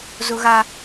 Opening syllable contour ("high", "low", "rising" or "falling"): high